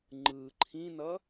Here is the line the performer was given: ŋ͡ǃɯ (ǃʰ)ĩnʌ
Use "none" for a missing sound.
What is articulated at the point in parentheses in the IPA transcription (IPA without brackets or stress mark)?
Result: ǃʰ